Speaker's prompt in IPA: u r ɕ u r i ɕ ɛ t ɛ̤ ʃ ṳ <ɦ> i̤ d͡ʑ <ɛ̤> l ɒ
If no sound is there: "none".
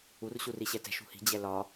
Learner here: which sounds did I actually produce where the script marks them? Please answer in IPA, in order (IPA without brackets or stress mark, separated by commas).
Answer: h, ɛ